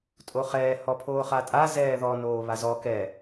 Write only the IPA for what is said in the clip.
tʼoχɛː hɔpʰoːχatʼa zɛːðɔ noːβazɔ kɛ

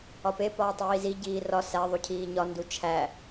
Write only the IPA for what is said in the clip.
ɒpe pɒːtˤiːzi ɟiːrɒ sæ ðˤucʰiːɲɒ ndut͡ʃʰæ

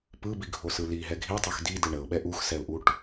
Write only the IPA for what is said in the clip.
pɯbiɡʱosɯ liɦɛ ɡʱitˤox di dɯɳəʊ̯ɓɛ ʔuxsɛʊ̯ʔuʈ

